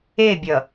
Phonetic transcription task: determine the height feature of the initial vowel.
mid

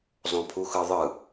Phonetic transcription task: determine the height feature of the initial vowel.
mid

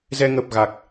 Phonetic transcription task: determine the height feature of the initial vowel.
mid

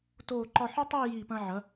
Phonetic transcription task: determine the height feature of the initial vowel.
mid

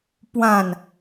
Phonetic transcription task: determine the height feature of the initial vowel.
low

